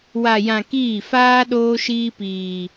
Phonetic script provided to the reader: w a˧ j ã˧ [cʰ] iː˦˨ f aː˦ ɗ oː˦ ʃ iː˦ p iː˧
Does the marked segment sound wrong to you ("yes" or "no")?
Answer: yes